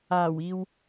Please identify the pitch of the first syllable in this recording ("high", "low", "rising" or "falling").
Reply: low